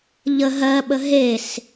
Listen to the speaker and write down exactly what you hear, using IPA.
ʎə ɦɜɓə ɦes

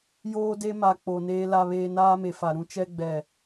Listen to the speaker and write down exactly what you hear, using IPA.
joː˦de˦ ma˨ k͡po˨ neː˦la˦βeː˦ naː˦me˨fa˨ ɾũ˦ t͡ʃɛ˦ɡ͡bɛ˨

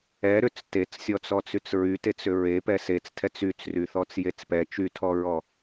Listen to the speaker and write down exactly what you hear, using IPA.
ɛ ɾʏt͡s tet͡ssʲɔt͡sɔ t͡syt͡sɹytet͡s ʏɹe pɛset͡stʰɛt͡s yt͡sryθɔt͡s jet͡spɛ t͡ʃytʰɔɹɔ

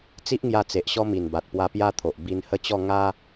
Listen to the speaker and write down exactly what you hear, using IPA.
t͡si˦ʔŋja˧ t͡se˨ʔɕɔ˦ mi˨˩nba˨t̚ pwa˧pja˦t̪ʰo˨ʔ bi˧nhə˦t͡ɕɔ˥˧ ŋa˦

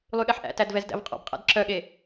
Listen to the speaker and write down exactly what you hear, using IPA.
lˠyɠɛħʔæ̰tæd vɛzdæ̰vqʼɔ̰bqʼæ̰d ǁœɠe

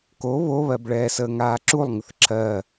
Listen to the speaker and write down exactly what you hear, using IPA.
ko βoβɜbɭɛː səːŋaːǁulˠ ŋəθǁʰɜ

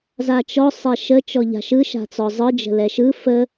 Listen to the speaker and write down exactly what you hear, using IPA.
zat͡ʃɔ sˤɛʃə t͡ʃɔʎa̤ʃɯ ʃa̤t͡sɔzˤɯ d͡ʒə̤lɛʃɯ fə

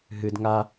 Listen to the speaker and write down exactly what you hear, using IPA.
ɦɨd ŋa

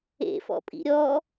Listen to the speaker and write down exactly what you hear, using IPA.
ḛfɔ̰pʼḭ ɾʲɔ

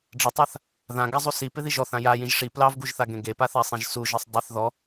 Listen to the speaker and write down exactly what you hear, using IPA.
ɖ͡ʐətˤaθ | ðãɡazˤu sipɪðiʒ ɔθã jajĩʒ ʂi plɑvɡuʒθaɡẽ ɡepaθasˤĩʒ suʒisˤ dˤɪθ ðɔ

